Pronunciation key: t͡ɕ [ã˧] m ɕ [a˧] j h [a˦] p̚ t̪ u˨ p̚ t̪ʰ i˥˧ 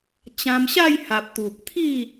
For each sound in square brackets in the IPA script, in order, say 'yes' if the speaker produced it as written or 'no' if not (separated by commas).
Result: yes, no, no